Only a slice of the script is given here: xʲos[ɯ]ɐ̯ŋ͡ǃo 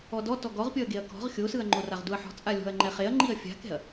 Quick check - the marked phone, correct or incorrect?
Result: correct